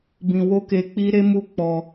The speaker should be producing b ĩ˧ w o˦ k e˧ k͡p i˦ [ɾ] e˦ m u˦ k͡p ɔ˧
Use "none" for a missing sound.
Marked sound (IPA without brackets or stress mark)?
ɾ